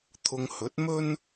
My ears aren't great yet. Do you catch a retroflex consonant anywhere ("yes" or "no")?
no